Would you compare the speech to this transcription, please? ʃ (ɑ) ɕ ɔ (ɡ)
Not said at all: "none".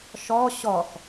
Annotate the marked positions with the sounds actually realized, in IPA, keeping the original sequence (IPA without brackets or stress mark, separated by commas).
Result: ɔ, x